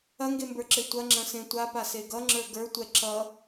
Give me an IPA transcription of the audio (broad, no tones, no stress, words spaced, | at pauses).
ɐŋɡembə˞ǁe tʷɐŋ͡ǁɐ̃sẽ tʷapase ɡʌŋ͡ǁə˞ ɡə˞tʷɛ ǁʌ